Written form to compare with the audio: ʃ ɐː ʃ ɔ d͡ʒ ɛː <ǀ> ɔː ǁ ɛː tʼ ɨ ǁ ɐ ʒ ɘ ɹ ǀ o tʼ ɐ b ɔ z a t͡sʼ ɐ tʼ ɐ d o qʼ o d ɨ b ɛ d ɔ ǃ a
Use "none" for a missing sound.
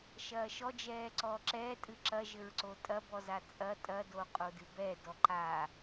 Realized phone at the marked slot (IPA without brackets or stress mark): ǀ